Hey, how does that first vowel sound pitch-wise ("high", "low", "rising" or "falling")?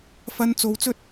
high